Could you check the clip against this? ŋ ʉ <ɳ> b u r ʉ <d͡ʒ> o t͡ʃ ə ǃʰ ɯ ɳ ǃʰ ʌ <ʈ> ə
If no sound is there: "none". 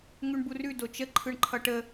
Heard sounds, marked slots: ɳ, d, ʈ

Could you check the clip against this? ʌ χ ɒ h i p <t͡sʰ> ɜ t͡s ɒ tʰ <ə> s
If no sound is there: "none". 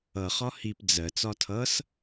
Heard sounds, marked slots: d͡z, ʌ

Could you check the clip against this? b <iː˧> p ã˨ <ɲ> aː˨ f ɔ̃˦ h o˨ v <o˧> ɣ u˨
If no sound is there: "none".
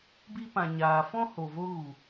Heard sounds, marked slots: i˧, ɲ, o˧

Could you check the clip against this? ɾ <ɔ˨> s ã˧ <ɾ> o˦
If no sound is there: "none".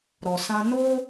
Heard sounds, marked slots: ɔ˨, n

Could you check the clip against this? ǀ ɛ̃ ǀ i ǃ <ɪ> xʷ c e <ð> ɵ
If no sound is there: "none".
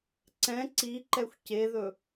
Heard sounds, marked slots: ɛ, ð

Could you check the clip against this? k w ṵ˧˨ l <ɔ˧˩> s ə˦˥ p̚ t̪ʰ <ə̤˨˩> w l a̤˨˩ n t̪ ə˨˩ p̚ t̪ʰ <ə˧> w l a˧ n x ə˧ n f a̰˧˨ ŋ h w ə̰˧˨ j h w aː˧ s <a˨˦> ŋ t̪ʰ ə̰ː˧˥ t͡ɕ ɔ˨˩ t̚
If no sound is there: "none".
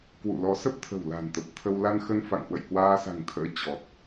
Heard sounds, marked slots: ɔ˨˦, ə̤˨˩, ə˧, a̤˨˩

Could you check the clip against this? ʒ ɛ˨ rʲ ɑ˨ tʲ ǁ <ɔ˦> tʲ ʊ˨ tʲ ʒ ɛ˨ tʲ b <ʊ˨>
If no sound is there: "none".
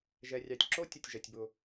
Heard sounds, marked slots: o˦, ʊ˨

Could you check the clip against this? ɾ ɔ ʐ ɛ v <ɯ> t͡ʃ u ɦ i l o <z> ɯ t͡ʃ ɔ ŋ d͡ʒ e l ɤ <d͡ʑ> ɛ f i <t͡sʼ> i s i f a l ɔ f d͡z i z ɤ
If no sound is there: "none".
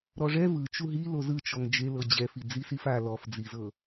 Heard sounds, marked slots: ɯ, z, d͡ʑ, d͡z

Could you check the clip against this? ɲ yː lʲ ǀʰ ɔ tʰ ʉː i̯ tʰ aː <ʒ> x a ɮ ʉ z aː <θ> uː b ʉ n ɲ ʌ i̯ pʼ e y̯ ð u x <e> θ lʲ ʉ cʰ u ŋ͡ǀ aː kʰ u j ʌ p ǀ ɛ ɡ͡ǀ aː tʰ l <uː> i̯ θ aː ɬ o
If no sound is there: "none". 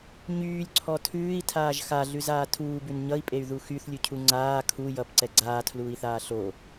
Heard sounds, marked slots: ʒ, tʰ, y, uː

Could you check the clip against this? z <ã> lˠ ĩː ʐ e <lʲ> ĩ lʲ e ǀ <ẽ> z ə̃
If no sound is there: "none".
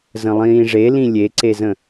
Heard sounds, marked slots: ə̃, l, e

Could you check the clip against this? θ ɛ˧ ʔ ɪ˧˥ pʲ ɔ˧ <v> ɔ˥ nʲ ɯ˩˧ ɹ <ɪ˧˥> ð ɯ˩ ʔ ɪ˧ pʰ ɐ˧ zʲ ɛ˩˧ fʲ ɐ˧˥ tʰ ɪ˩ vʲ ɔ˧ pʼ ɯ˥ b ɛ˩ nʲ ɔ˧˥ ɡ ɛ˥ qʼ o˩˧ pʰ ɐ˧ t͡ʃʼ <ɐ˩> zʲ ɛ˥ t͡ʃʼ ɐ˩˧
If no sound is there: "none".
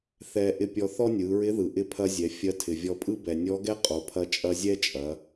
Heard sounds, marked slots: θ, ɪ˧˥, ɐ˧

